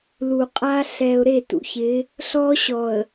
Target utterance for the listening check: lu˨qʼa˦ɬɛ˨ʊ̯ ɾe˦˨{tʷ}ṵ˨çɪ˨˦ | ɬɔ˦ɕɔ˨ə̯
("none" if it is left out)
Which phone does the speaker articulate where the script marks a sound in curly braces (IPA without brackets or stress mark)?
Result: t